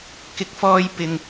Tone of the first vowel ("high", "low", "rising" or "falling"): rising